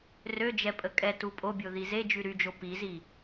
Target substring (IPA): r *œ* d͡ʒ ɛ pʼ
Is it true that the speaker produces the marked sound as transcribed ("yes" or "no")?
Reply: no